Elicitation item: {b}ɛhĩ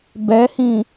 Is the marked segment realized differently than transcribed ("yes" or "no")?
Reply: no